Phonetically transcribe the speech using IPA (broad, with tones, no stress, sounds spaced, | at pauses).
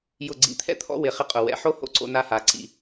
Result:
j ʊ˦˨ ɡ͡ǀ ḭ˦˨ t̪ʰ ɛ̰˥ t̪ʰ ɔ̰˥ w ɪ˦˨ χ ɪ˥ qʼ ʊ˦˨ w ɛ̰˦˨ ħ o˥ h o̰˦˨ ǀ o̰˥ n a˥ h a˦˨ ǀ ḭ˦˨